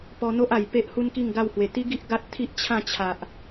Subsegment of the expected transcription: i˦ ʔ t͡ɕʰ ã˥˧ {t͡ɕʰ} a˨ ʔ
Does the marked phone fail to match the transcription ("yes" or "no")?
no